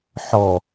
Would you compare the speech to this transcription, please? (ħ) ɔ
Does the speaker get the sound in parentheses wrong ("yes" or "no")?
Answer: no